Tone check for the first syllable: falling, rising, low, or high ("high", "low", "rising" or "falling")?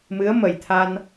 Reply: rising